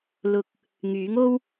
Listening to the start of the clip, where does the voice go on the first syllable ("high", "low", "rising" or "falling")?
low